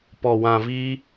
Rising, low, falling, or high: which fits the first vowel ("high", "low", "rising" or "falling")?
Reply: low